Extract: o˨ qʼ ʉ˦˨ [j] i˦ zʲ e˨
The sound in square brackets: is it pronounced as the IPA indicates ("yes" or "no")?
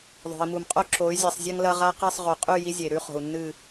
yes